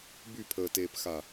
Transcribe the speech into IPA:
b y pʰ əː t eː p x a

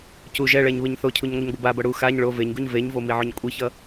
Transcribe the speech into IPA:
c u ʒ ɛ ɭ ɛ ɲ β ɯ ɲ θ o cʰ u ɲ ŋʷ ɯ ɲ ɡʷ ɯ b a b ʌ ɽ u x a ɲ ɭ o v e ɲ ɡ u ɲ v e ɲ v o m i ʕ o ɲ kʷʼ i ç ʌ

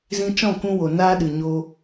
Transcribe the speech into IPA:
z ĩ˧ t͡ʃ ɔ̃˦˨ k ũ˧ w o˨ n aː˦ ɗ ɨ˨ ɲ o˧

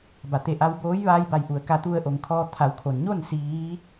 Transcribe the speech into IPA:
b a˩ t̪ e˧˩ ʔ a˧ w b oː˧˥ j ʋ aː˧ j b a˧˩ j ʔ u˩ ə̯ k a˧ t̪ u˧ ə̯ ʔ o˩˧ ŋ kʰ ɔː˧ t̪ʰ a˩˧ w kʰ o˩ n ɲ o˥˨ n s iː˧˥

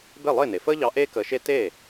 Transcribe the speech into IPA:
b e˥˩ lˠ ɪː˥˩ n e˩ f əː˥ ʎ ɑ˧ ʔ eː˥ k əː˧ ʃ e˥ t eː˥˩

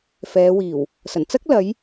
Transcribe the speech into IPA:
f ɛː˨˧ w iː˨˩ w | s ɐ˨˩ n t͡s ɐ˥ k̚ l ɐ˨˧ j

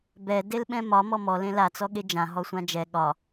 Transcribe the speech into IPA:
b ɛ d e l ɓ ɛ̃ m ɒ m ɔ m ɔ l ẽ l a t͡s ɔ ɠ e d͡ʒ ã ɦ ɔ sʷ ã d͡ʒ ɛ ɠ ɒ

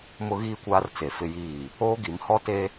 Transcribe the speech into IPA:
m ʊ˦ ɣ iː˦ kʷ aː˦ r t͡s e˨ f ɪ˦ j iː˦˨ | oː˦ ɡ i˨˦ m h ɔ˦ t e˦

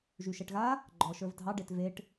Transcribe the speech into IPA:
ʒ y ʃ ɛ ʈ ɣ a | ɡ͡ǃ ɔ ʃ ə˞ v dʱ ɑ ɖ e t v e ʈ

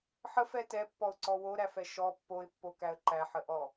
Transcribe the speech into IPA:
ħ ə f ɛ t ɛ pː ɔ ʊ̯ ǀ ɔ w o ɾ æ f ɛ ʃ ɔ pː o ɪ̯ pː o k æ ə̯ ǃ æ ħ ə ʔ ɔ

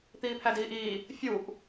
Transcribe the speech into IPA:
t̪ iː pʰ æ d iː ʔ iː | fʲ u ʔ

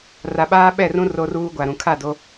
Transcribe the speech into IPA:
r a˨ ɓ aː˦ ɓ ɛ˦˨ r ũ˦ r o˦ r uː˦ ɡʷ a˨ ɾ ũ˨ kʰ a˦˨ d o˦

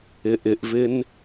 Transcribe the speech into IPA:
ɪ ʔ ɪ ʔ v ɪ n

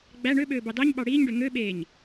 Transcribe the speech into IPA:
ɡ͡b æ ɳ ø ɓ øː b ɑ d ɑ ɲ ɓ ɑ ɽ iː ɲ ɖ ø ŋ ø ɓ eː ɲ

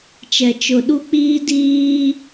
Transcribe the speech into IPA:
t͡ʃ ɛ˨ t͡ʃ ʊ˨ ɗ u˦ k͡p iː˦ d iː˦

